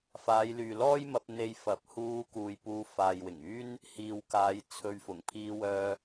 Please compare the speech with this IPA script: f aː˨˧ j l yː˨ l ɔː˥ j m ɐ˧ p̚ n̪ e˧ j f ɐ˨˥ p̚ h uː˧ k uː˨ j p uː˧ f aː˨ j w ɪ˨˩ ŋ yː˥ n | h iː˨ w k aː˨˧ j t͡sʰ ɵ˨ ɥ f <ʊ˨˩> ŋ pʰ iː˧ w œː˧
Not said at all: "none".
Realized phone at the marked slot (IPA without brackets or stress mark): ʊ˨˩